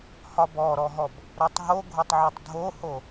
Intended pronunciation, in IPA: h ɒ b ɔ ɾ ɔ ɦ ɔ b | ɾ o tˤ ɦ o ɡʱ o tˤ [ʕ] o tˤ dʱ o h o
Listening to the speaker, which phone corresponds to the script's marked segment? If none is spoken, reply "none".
ʕ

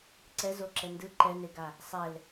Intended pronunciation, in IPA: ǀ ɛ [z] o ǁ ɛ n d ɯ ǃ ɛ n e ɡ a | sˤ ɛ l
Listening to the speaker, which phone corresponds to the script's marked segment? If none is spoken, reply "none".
z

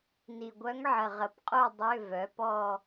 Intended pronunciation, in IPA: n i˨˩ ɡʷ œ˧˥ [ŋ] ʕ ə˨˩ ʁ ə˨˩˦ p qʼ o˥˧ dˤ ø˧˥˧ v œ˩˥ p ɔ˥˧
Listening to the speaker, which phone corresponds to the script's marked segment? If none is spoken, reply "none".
ŋ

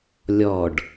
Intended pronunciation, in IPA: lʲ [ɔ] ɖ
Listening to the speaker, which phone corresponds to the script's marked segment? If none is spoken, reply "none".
ɔ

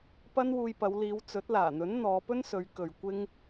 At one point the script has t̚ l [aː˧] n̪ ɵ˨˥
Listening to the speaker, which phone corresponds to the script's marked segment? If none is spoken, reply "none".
aː˨˩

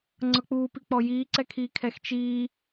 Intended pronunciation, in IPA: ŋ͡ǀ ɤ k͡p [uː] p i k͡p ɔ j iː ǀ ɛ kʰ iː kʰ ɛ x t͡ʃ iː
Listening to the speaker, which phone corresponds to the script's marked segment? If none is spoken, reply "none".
uː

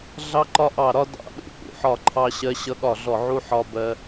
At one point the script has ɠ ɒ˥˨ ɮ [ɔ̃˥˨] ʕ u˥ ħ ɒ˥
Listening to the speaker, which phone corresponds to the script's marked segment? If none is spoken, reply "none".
ɔ˥˨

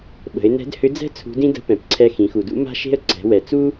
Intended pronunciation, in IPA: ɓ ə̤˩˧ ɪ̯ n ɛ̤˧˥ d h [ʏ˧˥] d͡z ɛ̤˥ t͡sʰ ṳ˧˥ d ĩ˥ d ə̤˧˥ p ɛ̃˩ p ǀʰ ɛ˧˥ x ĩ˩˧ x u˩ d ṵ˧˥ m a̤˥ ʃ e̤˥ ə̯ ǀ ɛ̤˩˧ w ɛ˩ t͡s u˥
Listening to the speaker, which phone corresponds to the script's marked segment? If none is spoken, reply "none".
ʏ˧˥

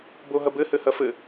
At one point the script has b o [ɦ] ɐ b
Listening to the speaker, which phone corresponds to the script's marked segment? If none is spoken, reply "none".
ɦ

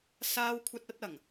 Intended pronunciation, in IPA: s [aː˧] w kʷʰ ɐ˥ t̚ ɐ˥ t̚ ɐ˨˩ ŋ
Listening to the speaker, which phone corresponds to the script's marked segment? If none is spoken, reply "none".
aː˥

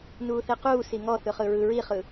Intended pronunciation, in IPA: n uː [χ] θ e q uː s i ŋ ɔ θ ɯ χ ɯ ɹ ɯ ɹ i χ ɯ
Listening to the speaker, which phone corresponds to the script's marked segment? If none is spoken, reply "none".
none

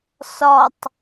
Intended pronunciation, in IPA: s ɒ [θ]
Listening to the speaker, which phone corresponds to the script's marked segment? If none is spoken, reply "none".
tˤ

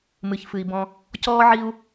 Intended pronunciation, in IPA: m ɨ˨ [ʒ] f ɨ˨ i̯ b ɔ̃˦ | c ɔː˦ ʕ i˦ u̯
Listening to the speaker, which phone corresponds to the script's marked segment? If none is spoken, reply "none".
ç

